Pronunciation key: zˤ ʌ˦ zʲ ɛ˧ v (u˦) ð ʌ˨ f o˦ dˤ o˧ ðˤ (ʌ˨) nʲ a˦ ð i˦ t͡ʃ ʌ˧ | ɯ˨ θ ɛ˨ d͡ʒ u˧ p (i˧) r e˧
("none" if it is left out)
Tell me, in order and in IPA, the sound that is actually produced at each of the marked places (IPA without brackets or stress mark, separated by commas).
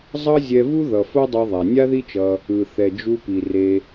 u˦, a˨, i˨